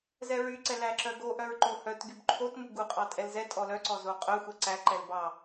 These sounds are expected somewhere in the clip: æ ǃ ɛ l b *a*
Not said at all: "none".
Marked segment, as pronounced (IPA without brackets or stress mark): ɑ